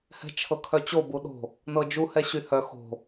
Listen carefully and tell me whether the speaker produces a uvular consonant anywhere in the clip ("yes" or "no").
no